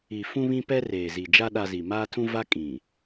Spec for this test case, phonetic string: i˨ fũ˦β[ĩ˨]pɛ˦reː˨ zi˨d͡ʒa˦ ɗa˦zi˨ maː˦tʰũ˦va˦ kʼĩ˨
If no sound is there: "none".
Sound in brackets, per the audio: ĩ˦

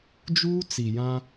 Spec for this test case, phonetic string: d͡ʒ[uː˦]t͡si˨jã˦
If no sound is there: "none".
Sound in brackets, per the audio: uː˦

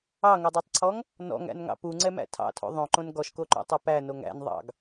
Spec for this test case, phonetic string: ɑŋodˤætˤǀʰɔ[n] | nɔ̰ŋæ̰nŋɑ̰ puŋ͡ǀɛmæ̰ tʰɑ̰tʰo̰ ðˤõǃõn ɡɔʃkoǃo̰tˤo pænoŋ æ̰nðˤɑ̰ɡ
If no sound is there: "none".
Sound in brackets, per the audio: ŋ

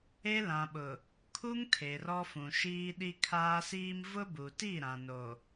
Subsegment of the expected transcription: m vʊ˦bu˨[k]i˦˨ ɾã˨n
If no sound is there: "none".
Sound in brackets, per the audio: t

